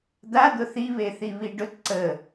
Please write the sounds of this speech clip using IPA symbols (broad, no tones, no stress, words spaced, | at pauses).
d̪ad̪ʊ θiβeθi βiɖʊt ǀə